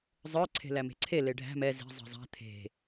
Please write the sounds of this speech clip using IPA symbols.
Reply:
zˤ ə˞ ǀʰ e̤ l æ m e̤ ǀʰ e l e ɖʱ æ̤ m ɛ z i̤ zˤ i̤ zˤ æ̤ t̪ʰ e̤

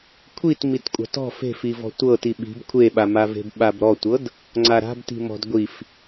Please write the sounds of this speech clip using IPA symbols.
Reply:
kʷʰ i t m i t kʷʼ a̤ t ɔ̤ f e̤ f i v ɔ̤ tʷ ɤ t i ɓ i̤ b kʷʰ e ɓ a m a v e̤ b ɓ a b ɾ ɔ tʷ ɤ d | ŋ͡ǀ a ɾ a̤ b t i̤ m ɔ̤ d ɡʷ i f

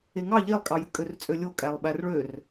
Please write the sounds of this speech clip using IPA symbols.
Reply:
e ŋ ɑ ʎ e lˠ kʼ ɑ j ɯ kʼ ø r t͡sʼ ø lʲ o kʼ æ lˠ ɓ æ r ɭ ø r

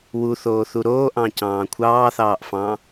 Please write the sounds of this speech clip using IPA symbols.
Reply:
w u θ oː θ u ɾ oː ʔ ɑ̃ c ɑ̃ː kʷʰ ɑː θ ɑː ʔ f ɑ̃ː

